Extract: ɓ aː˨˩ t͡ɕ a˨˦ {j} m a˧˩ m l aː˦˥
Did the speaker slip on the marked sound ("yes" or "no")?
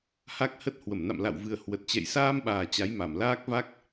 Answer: no